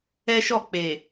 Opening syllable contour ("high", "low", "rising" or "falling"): high